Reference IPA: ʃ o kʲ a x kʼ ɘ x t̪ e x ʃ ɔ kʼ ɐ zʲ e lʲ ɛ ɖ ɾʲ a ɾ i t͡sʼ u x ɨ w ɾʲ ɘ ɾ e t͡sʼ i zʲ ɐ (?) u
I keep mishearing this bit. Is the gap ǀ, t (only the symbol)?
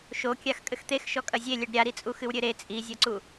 ǀ